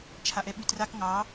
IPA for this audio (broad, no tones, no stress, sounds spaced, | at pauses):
t͡ʃʰ a ʔ ɛ ɓ ʉ t r a k ŋ ɑ